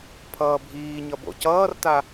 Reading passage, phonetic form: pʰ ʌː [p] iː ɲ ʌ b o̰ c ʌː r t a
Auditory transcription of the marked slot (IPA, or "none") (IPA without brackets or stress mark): bʱ